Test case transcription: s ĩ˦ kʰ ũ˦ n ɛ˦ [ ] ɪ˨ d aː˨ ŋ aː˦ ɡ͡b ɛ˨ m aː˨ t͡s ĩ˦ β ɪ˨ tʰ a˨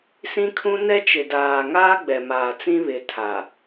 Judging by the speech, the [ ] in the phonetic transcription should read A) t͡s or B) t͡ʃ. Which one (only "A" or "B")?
B